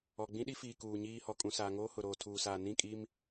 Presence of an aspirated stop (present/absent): present